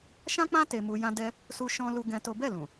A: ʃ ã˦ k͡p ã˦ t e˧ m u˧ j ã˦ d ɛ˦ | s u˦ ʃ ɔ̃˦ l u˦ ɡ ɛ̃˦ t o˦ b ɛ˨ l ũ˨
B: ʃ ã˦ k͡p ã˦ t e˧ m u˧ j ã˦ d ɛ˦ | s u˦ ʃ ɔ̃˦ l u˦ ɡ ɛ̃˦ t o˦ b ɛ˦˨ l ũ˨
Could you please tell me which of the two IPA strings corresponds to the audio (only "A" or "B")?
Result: B